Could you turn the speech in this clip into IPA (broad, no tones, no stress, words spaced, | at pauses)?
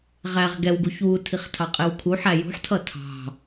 ʁæʁ ɡɛwɡuç wutʰiχtʰɑqʼɪw kʰuħæ jṳħtʰʌ tʰɑ̤